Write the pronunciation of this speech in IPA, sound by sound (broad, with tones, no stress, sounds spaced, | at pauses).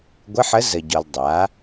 ɡʷ ɘ˧˥˧ ħ ə˧˥ z ə˨ ɟ ɔ˨ l dˤ a˩˥